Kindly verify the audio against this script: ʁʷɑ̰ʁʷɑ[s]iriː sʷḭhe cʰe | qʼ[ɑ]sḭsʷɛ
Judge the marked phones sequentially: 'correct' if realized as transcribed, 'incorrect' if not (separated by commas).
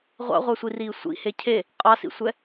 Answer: incorrect, correct